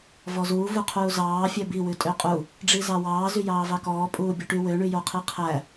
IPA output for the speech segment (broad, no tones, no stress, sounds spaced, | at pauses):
v ɔ z uː v u qʰ uː z ɑː fʲ œ b i w ʉ tʼ ø qʼ u | ɖ͡ʐ i z ɑ w ɑː z y j ɑː v ɑ k ɔː pʼ uː bʲ o ʈ y w ø ɳ y j o qʰ i qʰ æ